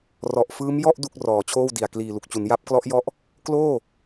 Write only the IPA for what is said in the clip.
rɔ˨˩ʔfɯː˦˥m jɔ˥˩ʔ du˥˩k̚ rɔː˨˩t͡ɕʰoː˥˩wdi˨˩a̯ kliː˨˩lu˨˩k̚t͡ɕu˩˦n ja˦˥p̚klɔ˦˥ʔjɔ˦˥ʔ | kloː˥˩

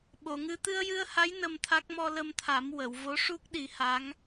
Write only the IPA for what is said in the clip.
ɓo˨˩˨ŋɨ˧ t̪ɨ˧ə̯jɨ˧ə̯ha˧˥j nə˧mt̪ʰa˦˥k̚ mɔ˧lə˧mt̪ʰa˨˩˦m wə˨˩˨wvo˧˥ʂu˦˥k̚ ɗi˨˩˦ha˧˥ŋ

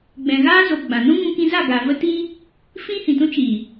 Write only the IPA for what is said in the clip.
ɡ͡bɛ̃˨ɣaː˦zo˨ ɡ͡bã˨ nũ˦ŋũ˧kĩ˧za˦˨ ɡaː˨və˦tiː˦ | fĩ˦hĩ˨tũ˦t͡ʃiː˨

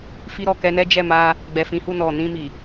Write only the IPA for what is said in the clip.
fi˧ɾɔ˨kɛ˧nɛ˦ d͡ʒɛ˦˨ma˧ | ɡ͡bɛ˨fĩ˨˦hu˦˨ nɔ˨nĩ˧mi˨

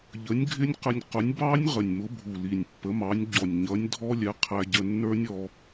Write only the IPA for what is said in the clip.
ʎə˨˥nʲɡʱɪ˦˥nʲqə˧nʲ qʊ˨˥nʲ bɑ˦˥nʲ ʁə˨˩nʲmʊ˨˥bʱu˨˩ li˨˩nʲpːə˨˥mɑ˨˥nʲ ɟɔ˨˩nʲɲʌ˨˥nʲdʱɔ˦˥lʲɛ˨˥ qʰæ˧ɟə˧ nːə˞˦˥nʲ ɔ˧

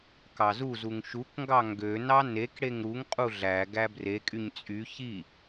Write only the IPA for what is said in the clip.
kɑzuzuŋ ʃukŋɡɑ ŋɡønɑ nek ɽeŋɾuŋqʼu ɮæ ɡæbrekʼyɲ t͡sʼy çi

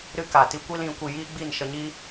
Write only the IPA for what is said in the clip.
ɾɨ˦ka˨ ti˧kʷi˦lĩ˨˦ kʷi˧ jiː˦ɡ͡bi˦˨nʃə˧ɲi˦

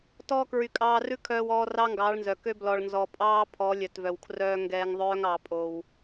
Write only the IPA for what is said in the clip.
tɔː˧ kɹy˨ kʼɑː˧rʉ˦kʰœː˧wɔː˧ rɑ˦ŋɡɑː˨˦ɭnzœ˨ kø˧ blɔ˨ɭnzɔ˨pʼɑː˦pʰɔ˨˦ lʲœ˨tvœ˨wkʰrœː˧ ŋɡɛː˧ŋðˤœː˦ŋɑ˧ pʼo˧w

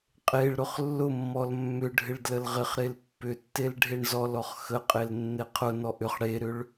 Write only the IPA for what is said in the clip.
qʼeɭɾʊχ lːʊmːɔl mːʏɖʱɪɭ dləlʁɪχɾel pːʏtːel ɖʱeɳzɔlɔχ xəqʼel nːeqʰʊnɔ ʔʏχ ɽeɾʏɭ

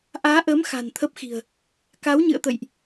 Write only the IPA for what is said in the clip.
ʔaː˨˦ʔəː˨˦m xa̤˨˩nt̪ʰə˦˥p̚xi̤˨˩ə̯ | ka˨˦wɲɨ̰˧˨ə̯t̪ə̰˧˨jʔ

